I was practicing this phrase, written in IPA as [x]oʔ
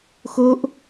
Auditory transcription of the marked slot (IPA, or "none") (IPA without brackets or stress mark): x